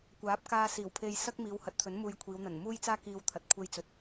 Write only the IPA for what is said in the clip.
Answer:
kʷ aː˨˥ p̚ k aː˧ s iː˨˩ w pʰ e˧ j s ɐ˥ k̚ m iː˨˧ w h ɐ˨ t̚ t̪ʰ ɵ˨˥ n m uː˧ j kʷʰ iː˨˧ w n̪ ɐ˨˩ n m uː˥ j t͡s aː˥ k iː˧ w t̪ʰ ɐ˧ t̚ kʷʰ e˥ j t͡s ɵ˧ t̚

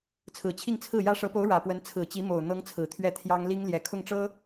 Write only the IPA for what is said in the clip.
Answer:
t͡sʰ ɹ̩˨˩ t͡ɕʰ i˥˧ ŋ t͡sʰ ɹ̩˥˩ j ä˥ ʂ ɤ˧˥ p o˧˥ ʊ̯ ɻ ä˨˩ p w ə˧˥ n t͡sʰ ɹ̩˨˩ t͡ɕ i˧˥ m o˨˩ ʊ̯ n̪ ɤ˥ ŋ t͡sʰ ɹ̩˨˩ t̪ʰ ɥ ɛ˥˩ t̪ʰ j ɑ˥ ŋ l i˥ ŋ l j ɛ˨˩ kʰ ʊ˥˩ ŋ ʈ͡ʂ ɤ˥

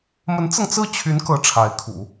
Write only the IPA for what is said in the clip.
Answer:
m ə˧˥ n t͡s ɤ˧ ŋ t͡s ɹ̩˥˩ t͡ɕʰ y˧˥ n k ɤ˧˥ ʈ͡ʂʰ a˧˥ ɪ̯ kʰ ṵ˨˩˦

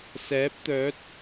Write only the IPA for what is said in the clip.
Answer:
s ɛː˨˥ p̚ t̪ œː˨˥ t̚

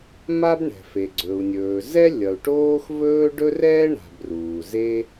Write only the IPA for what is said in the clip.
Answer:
m a˥ b ɳ ɛ̤˩ f e˩ ɡ͡ǀ ɵ˩ u̯ nʲ ɵː˩ z ɛ˥ lʲ ʌ˩ u̯ ʈ oː˥ x v ɵː˥ ɖ ɵ˥ r ɛː˥ ɳ a̤˩ b r uː˩ z e˥

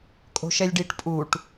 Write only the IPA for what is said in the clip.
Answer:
kʼ o̤ ʃ ɛ lʲ ɖ i ʈ pʼ u ʈ

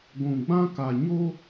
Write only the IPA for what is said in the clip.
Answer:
ɡʷ ũ˨ ɡ͡b ã˦ k a˨ ɲ o˦

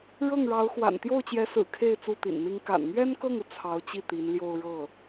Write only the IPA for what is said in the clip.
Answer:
ɻ ɤ˥˩ ŋ ɻ ɑ˧˥ ʊ̯ x w a̰˨˩ n t̪ j o˥˩ ʊ̯ t͡ɕ j ɛ˧˥ s ɹ̩˨˩ kʰ e˥˩ ɪ̯ t͡s u˥ t̪ ḭ˨˩ n n̪ i˥ ŋ k a̰˨˩ n m ɥ ɛ˥ n k ɤ˥˩ ŋ u˩ t͡sʰ ɑ˧˥ ʊ̯ t͡ɕ i˥˩ t̪ i˧˥ n l j o˥˧ ʊ̯ ɻ ɤ˥˩

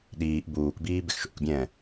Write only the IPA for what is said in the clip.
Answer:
ɗ iː ʔ b uː k b iː b ɪ x ʃ o̰ k bʲ ɛ̃ː

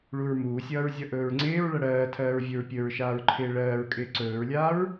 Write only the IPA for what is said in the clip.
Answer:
ɭ u ɹ m uː sʲ ʌː ɹ zʲ ʌ ʔ ɵː ɹ ŋ͡ǀ ɪː ɹ ɭ ʌ ɽ ɜː tʰ ɜː ɹ vʲ ɵ ɹ pʲ ɵ ɹ ʃ aː ɹ ǃʰ ɪː ɭ ɜː ɹ kʼ ɪː ǀ ɵː ɹ lʲ aː ɹ

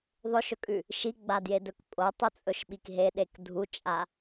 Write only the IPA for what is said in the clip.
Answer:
ðˤ ɵ ʃ ɵ kʼ ʉ | ʃ i ɡ͡b a d j e d ɵ k pʼ o tˤ u t͡sʼ ɵ ʃ ɓ i k ɦ e ɗ e k dʱ u t͡ʃʼ a

